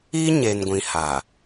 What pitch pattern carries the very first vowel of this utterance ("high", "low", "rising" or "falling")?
high